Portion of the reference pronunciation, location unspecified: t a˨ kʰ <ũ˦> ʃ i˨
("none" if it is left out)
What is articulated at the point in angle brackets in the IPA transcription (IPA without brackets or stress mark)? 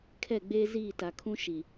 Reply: ũ˦